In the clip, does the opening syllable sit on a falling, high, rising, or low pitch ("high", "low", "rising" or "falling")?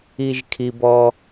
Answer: low